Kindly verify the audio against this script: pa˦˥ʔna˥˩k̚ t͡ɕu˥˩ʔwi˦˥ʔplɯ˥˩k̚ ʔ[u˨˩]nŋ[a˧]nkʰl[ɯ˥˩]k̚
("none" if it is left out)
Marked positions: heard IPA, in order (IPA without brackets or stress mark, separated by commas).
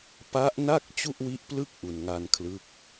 u˨˩, a˧, ɯ˦˥